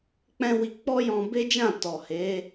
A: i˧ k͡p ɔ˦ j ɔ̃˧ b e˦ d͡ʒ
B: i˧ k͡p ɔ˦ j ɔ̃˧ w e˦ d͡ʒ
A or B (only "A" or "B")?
A